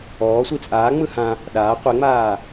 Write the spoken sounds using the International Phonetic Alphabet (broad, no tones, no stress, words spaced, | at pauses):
ɔː sʷit͡sʼaː ŋ͡mɯhã | ɗaː qʷeŋ͡maː